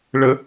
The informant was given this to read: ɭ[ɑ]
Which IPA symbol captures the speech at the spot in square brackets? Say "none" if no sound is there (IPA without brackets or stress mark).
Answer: ə